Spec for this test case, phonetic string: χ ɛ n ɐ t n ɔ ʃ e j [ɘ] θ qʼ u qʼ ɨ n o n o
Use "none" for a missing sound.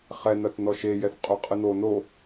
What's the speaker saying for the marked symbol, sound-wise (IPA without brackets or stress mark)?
ɛ